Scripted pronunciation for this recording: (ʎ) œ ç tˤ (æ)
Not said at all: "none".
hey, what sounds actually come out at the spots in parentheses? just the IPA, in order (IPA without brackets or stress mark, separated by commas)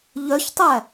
ʎ, æ